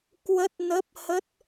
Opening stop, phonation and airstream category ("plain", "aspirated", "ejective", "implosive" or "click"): plain